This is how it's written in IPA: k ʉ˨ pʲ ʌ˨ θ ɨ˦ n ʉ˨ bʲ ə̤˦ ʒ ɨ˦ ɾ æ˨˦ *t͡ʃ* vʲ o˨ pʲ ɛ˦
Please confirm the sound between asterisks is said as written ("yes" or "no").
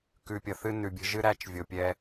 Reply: yes